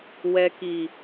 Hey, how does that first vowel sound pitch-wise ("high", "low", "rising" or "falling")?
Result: low